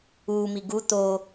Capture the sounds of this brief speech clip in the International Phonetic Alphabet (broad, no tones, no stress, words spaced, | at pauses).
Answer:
uːmi ɡu t̪o